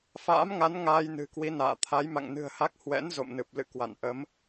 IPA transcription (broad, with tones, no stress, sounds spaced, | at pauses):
f a̰ː˧˥ m ŋ a˨˦ n ŋ aː˧ j n ɨ̤˨˩ k w i˨˦ n a̰ː˧˨ t̪ʰ a˨˦ j m a̰˧˨ ŋ n ɨ̤˨˩ ə̯ h a˦˥ k̚ h w ɛ̰˧˥ n z o̰˧˨ m n ɨ˨˩ p̚ l ɨ̰˧˨ k w a̰˧˨ n ʔ ə˨˦ m